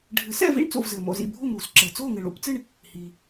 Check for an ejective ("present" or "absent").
absent